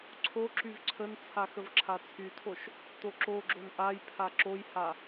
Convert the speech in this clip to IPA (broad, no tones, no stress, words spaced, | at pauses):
ǀʰo ǁyvǀʰənt͡sʰa xəvǁʰat͡sʰytʰoʃ | t̪oǁoɡ͡ǁon ʔajpʰa ǁojha